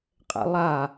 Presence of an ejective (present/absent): present